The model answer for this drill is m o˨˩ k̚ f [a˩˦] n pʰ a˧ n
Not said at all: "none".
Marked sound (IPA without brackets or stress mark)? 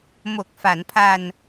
a˩˦